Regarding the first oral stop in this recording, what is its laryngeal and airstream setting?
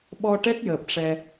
implosive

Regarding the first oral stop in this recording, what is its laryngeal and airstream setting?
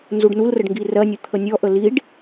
plain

